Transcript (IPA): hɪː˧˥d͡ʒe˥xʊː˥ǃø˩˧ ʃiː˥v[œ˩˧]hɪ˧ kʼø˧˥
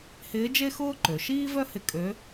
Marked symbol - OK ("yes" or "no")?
no